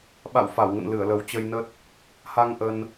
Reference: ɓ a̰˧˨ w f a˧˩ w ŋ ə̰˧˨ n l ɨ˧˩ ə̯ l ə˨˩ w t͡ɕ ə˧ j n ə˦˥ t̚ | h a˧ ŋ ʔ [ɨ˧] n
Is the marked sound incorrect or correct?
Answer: incorrect